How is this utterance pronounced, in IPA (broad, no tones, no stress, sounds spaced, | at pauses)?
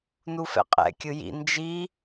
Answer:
n u f ɛ̰ qʼ ɛ̰ kʲ ɯ j ḭ n d͡ʒ i